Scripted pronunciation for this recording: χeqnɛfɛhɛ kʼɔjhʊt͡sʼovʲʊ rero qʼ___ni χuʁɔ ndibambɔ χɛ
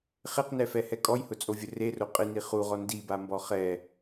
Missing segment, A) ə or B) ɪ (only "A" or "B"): B